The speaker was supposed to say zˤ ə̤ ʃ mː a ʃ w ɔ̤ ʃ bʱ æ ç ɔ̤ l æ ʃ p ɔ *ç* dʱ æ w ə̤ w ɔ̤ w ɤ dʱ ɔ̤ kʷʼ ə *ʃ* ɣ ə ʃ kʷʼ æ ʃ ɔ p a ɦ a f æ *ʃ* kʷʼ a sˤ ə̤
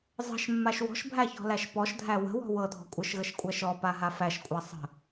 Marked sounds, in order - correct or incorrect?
incorrect, correct, correct

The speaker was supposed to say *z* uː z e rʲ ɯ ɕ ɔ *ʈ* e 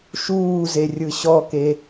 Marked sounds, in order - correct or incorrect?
incorrect, incorrect

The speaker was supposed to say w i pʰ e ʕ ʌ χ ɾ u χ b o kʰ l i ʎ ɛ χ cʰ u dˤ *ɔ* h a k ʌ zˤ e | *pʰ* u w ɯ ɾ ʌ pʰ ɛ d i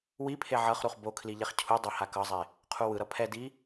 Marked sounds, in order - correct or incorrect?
incorrect, incorrect

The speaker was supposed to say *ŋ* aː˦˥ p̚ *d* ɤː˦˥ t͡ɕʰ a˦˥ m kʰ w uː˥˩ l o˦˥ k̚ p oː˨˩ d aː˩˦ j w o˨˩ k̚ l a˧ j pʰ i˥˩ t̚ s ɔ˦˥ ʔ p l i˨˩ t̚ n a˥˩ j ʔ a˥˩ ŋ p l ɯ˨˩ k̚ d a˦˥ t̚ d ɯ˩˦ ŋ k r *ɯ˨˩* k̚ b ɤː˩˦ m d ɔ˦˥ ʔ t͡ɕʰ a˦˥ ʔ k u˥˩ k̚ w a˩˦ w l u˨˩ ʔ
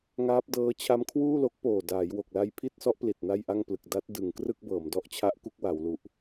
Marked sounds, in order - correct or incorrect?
correct, correct, incorrect

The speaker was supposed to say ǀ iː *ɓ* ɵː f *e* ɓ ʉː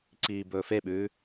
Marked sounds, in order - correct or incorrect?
incorrect, correct

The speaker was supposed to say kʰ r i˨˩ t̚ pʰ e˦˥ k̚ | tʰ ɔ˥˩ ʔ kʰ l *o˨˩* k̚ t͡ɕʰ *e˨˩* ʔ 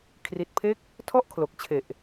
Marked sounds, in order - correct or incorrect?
correct, correct

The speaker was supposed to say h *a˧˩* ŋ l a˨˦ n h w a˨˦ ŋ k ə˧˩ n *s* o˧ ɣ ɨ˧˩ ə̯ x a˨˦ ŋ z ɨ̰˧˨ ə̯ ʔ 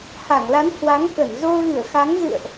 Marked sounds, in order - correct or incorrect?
correct, incorrect

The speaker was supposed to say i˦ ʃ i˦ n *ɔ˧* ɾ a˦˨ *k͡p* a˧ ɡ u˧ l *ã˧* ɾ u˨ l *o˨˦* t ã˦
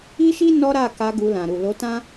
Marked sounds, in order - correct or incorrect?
incorrect, incorrect, incorrect, correct

